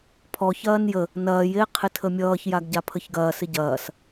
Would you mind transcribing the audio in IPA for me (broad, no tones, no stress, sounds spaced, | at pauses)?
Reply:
pʰ ɔ ç ɐː n j ə | n ɐː j e qʰ ɪ tʰ ə mʲ ʌː ç j a ɡ ɟ a pʰ ə ç ɡ ɐː s ɪ ɟ ɐː s